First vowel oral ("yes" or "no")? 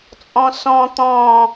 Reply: no